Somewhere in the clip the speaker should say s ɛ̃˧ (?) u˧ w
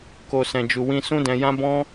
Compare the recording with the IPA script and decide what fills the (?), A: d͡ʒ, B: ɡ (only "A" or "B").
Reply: A